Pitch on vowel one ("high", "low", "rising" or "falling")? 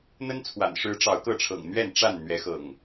high